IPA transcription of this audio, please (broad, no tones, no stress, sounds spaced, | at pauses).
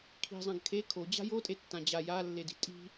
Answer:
kʰ i̤ zˤ ã ɡ kʰ e kʰ o d͡ʑ a̤ j o tʼ e tː ã d͡ʑ a j a lː e d i̤ tʼ i̤